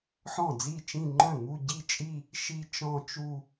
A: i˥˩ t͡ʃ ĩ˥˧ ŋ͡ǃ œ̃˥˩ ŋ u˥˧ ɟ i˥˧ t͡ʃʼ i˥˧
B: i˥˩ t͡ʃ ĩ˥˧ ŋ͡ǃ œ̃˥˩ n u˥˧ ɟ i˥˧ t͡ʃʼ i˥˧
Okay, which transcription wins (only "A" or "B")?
A